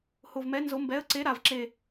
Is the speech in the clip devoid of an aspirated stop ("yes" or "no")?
yes